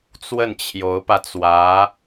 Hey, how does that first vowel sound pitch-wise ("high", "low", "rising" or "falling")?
falling